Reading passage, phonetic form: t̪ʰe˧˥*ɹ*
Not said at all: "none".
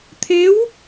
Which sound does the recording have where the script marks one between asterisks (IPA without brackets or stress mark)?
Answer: w